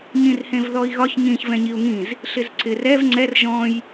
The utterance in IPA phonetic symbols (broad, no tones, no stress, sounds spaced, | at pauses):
ɲ ĩ r h ẽ v ð ɔ i̯ ɣ ɒ ç ɲ ĩ ç v ɛ̃ ɲ i u̯ ŋ ĩ z | ɬ ɪ z ǀ ɪ r ɛ v ŋ͡ǀ ɛ r ʒ ɔ̃ j